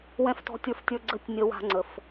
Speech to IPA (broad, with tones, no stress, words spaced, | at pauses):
wɛ̃˧ftɔ̤˧tʲə˞˧ftʲə˞˧ ɡ͡ǀə˧tʲ nʲə˧wa̤˧ ŋ͡ǀə˧f